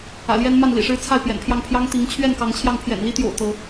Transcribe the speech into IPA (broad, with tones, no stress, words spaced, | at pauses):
ä̰˨˩ljɛ˦n ma˥˨nlḭ˨˩ʂɻ̩˦t͡sʰa˥˨ɪ̯ pjɛ̰˨˩npʰjɑ˥˨ŋ pʰjɑ˦ŋ t̪i˨˦ŋ t͡ɕʰɥɛ˥˨nkɑ˨˦ŋt͡ɕʰjɑ˧ŋ pʰjɛ̰˨˩nli˦t̪jo̰˨˩ʊ̯ t̪ɤ˨˦